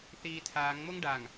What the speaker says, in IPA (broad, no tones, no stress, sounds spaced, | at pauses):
θ iː tʰ aː ŋ ŋ͡m o ŋ ɖ a ŋ